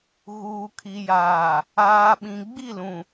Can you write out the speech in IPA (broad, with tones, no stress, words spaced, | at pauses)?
ɣuː˨kʰi˨jaː˨ | aː˨ɓĩ˨ ɡ͡bi˦˨lũ˨